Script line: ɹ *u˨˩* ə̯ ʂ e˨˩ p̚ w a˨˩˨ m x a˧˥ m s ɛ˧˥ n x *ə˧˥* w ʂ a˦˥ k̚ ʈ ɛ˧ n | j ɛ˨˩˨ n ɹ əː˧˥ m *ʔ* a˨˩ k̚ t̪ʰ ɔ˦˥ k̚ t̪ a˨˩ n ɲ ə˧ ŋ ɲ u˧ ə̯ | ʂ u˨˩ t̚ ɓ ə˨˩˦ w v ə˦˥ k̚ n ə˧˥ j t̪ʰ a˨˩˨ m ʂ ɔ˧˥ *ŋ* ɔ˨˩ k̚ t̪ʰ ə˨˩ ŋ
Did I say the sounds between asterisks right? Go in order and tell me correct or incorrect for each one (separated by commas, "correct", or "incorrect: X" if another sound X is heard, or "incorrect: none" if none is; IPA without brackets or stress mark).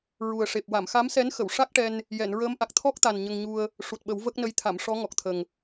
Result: correct, incorrect: ə˨˩˨, correct, correct